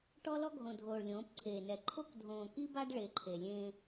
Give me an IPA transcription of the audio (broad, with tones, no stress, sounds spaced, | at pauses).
ʈ ɔ˦ l ɔ˦ ɡʱ õ˨ dʱ oː˨ ɭ lʲ õː˨˦ p ǀʰ eː˨ n ɛ˨ ǃʰ o˦ k dʱ õː˨ k i˦ b a˦ ɖ ɭ e˨ ǃʰ e˨ lʲ ẽ˦